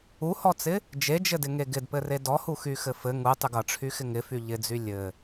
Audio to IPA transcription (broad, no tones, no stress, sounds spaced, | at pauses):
u h ɔ t͡s ɪ | d͡ʒ e d͡ʒ ɘ d ɪ ŋ e ɡ ɪ d p ɘ r e d ɔ h u x y x ɘ f ɘ ŋ u tˤ y ɡ ʌ ʈ͡ʂʰ y x ɪ ŋ ɪ f y ʎ ɪ d͡z y lʲ ɘ